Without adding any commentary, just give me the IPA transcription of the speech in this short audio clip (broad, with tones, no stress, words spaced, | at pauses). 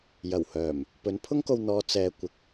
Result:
jɐ˨˩whœː˨˩m | pɵ˨˥npʰʊ˥ŋko˧w n̪ɔː˨˧ t͡sɛː˨ kʷɪ˨˥k̚